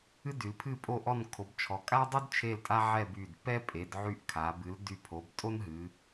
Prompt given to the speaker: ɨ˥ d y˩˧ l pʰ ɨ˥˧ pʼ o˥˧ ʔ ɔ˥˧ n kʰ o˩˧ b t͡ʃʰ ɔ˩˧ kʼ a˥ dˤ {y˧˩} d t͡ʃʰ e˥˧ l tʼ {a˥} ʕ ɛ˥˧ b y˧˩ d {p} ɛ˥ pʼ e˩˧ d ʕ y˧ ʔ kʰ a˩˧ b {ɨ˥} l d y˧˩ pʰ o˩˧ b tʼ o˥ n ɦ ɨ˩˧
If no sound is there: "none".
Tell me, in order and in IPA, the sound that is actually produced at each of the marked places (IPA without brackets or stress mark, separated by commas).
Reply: y˥, a˥, p, ɨ˩˧